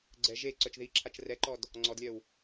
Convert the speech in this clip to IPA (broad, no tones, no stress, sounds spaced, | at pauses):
ɡ͡ǀ ɛ ʒ e ǀ œ t͡ʃ ð i ǁʰ a t͡ʃ r ɛ ǃ ɔ d | ŋ͡ǀ ɔ d lʲ œ w